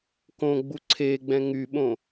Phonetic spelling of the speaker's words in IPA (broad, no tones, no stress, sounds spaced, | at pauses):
k õ ɡ͡b u ǀʰ e ɡ͡b ɛ̃ ŋ y ɓ õ